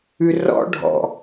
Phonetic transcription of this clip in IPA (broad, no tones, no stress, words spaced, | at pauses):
ʉrɔ̰ ɖʱɔ̰